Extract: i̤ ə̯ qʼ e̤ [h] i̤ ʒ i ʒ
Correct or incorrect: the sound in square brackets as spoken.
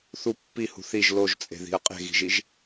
incorrect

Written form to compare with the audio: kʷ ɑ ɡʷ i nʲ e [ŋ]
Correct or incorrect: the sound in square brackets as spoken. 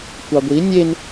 incorrect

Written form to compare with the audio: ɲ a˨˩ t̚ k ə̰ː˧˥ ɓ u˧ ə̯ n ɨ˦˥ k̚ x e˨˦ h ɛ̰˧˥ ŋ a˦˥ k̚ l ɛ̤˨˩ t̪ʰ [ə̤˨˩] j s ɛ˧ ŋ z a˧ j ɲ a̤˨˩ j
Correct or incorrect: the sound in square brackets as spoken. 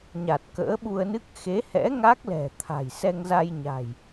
incorrect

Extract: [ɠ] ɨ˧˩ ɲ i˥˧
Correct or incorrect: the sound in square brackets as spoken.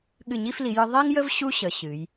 correct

